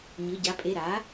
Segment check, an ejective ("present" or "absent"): present